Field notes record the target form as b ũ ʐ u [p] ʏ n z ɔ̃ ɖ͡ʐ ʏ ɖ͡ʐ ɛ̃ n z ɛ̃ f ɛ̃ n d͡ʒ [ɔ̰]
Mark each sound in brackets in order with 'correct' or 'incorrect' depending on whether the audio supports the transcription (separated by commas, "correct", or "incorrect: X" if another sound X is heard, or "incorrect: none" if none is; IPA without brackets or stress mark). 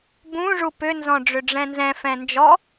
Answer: correct, incorrect: ɔ